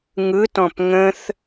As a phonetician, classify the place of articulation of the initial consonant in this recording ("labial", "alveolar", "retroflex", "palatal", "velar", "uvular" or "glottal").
velar